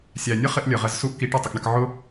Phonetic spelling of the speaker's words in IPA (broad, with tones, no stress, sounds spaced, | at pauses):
sʲ æ˨ nʲ ə˦ χ ɪ˧ ʔ lʲ ə˨ ʁ ɜ˧ z s u˦ ʔ k i˨˦ ʈ ɛ˨ tˤ ə˨ k ɳ ə˧ k ʕ ʊ˦